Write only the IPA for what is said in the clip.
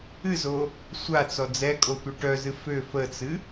ɨzo | sʷat͡sɔ d͡zɛkʼotʷə ʈœzɨ fø fət͡sɨ

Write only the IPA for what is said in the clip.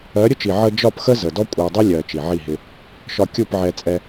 ɜ˨˦ɾʲʊ˦t͡ʃi˨ ʕə˧ d͡ʒɒ˦˨pxə˦ zə˨dɔ˦kʷʼæ˧dˤɪ˦ lʲɜ˨ t͡ʃi˨ʕi˦˨ɦɪ˧ | ʃɒ˧kʲu˦˨p ʕɛ˧t͡sʼɛ˧

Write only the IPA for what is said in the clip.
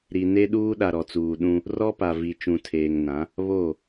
ɾi˨ne˦ ɗuː˦ɗa˨ɾɔ˨t͡suː˨ ɗũ˦ | rɔ˦pa˨vi˨ t͡ʃũ˨tʰeː˨ŋnã˨˦ | βo˦˨

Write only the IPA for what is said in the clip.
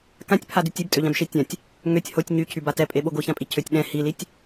kãtʲpʰadytʲ ibtʼøʎãbʃe tʲãtʲ | ŋøtʲ hotʲ ɲycʰyba tɛpʼeɓo ɡoçãpʼi cʰøtʲ ɗɛ̃ hilitʲ

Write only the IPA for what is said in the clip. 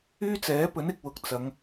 yː˥t͡sɛː˨˥pɵ˨˥n ɪ˧k̚wʊ˨k̚ t͡sɐ˨˧ŋ

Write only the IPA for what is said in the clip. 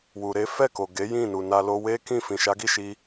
wu˨ɾe˨˦ fɛ˦˨ko˨ ɡe˨˦jĩ˦˨ nu˨na˧lo˧ we˦kĩ˦˨fĩ˨ʃa˨˦ ɡi˦˨ʃi˧

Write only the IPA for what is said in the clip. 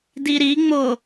diɾiŋ͡mo

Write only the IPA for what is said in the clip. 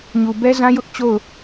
ɲu˨bɛ˦zã˦ jʊ˦ʔ t͡ɕo˦˨ʊ̯

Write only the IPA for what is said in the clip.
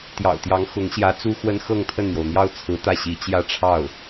t̪jɑ̰˨˩ʊ̯t̪jɑ˧˥ŋxʊ˧˥ŋ ɕjä˧˥ t͡su˥xwə˥n xɤ˥˧ŋt̪ʰə˥˩nn̪jo˩ʊ̯ n̪jɑ˥˩ʊ̯t͡sʰɹ̩˧˥ t̪ä˥˩ɕi˧˥ t͡ɕjä˥˧ʈ͡ʂʰɑ˥˩ʊ̯

